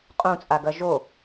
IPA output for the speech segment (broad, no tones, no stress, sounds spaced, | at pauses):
qʼ ũ t͡sʼ a ɡ ɐ ʒ o